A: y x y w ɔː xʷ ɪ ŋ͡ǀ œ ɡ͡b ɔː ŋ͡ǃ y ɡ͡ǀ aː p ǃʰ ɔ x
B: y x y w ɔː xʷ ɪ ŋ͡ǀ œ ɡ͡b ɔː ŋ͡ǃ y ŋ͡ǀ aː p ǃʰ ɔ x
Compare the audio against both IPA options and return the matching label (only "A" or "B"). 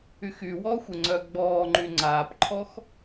B